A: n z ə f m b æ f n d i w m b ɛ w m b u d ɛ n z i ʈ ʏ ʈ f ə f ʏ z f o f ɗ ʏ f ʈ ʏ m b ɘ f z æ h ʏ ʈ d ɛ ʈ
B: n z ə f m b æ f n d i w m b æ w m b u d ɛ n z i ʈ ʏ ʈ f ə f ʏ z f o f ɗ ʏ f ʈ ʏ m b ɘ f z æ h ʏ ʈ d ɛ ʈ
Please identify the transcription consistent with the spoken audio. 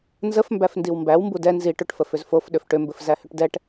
B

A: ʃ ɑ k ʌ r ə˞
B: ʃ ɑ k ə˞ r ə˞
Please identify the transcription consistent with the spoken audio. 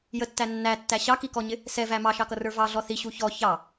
A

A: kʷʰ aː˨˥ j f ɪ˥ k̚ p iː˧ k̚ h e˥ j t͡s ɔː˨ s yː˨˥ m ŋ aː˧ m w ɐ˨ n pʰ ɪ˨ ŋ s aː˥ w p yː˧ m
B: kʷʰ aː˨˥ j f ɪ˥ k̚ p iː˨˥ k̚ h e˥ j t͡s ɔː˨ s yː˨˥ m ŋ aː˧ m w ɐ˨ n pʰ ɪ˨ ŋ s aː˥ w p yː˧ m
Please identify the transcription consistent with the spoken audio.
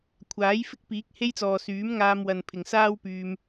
B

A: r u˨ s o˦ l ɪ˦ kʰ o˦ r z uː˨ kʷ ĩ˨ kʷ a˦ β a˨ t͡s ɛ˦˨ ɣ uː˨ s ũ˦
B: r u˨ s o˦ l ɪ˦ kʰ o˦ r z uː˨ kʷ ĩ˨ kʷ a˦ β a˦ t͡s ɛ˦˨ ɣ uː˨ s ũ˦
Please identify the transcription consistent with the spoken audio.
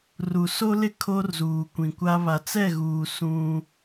A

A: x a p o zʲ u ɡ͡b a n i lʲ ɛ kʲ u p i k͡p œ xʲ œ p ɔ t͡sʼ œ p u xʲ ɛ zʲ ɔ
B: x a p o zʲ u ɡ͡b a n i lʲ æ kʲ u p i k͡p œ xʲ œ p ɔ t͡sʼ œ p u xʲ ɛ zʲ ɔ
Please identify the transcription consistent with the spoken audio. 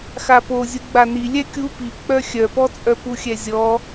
A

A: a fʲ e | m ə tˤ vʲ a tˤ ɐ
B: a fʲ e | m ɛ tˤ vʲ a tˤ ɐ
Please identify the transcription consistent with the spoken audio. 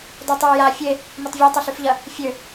A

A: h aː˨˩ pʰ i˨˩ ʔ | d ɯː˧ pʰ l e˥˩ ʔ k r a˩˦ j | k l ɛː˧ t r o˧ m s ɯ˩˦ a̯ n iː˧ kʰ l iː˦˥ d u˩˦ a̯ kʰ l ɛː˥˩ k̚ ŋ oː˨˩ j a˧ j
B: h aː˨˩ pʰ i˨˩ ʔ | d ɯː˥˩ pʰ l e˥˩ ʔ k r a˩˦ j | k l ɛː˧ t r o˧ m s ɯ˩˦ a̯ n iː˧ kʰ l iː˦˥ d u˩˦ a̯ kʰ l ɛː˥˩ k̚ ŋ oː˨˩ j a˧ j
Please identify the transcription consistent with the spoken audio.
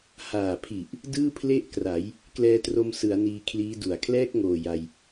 B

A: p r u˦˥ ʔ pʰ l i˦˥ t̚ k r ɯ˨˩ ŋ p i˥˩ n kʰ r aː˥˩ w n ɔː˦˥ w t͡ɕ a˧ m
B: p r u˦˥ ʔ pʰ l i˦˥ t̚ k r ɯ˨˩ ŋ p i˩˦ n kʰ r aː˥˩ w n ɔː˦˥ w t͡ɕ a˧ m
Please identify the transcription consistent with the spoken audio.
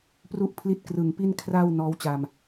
A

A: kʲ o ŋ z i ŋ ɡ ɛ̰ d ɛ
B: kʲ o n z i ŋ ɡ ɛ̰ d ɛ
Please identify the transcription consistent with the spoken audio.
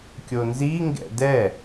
B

